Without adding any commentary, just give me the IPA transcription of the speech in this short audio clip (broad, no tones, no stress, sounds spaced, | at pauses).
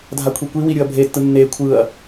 dʱ a kʷʰ i kʷ i w i ɾʲ ɯ ɐ̯ bʱ e tː ɯ nː e kʷʰ ɯ ɐ̯